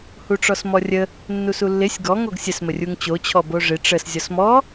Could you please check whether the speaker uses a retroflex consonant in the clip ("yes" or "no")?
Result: yes